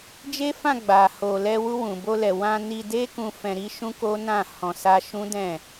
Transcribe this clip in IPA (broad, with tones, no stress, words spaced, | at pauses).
d͡ʒe˦fã˦˨ ɡ͡ba˨ ho˨lɛ˧ wu˧wũ˨bo˧lɛ˨ wã˧ ni˧de˦kũ˧ fɛ̃˧ɾi˦ ʃũ˦ko˦ nã˦˨ hɔ̃˧sa˦ ʃũ˦dɛ̃˦˨